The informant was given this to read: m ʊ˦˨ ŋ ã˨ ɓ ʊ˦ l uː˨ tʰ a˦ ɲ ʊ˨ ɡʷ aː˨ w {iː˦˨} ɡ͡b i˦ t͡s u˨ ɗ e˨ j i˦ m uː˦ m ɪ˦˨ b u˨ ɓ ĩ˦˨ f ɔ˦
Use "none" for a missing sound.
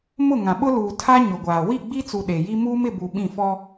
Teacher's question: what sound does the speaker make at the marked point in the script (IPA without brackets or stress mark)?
i˦˨